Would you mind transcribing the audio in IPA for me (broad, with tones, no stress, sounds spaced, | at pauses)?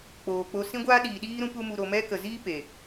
k͡p oː˨ k͡p o˧ s ĩ˦ ɡʷ aː˦ ɗ iː˨ ɗ iː˦ ɾ ũ˦ p u˦ m u˧ ɾ o˧ m ɛ˦ k ə˨ z iː˦ p e˨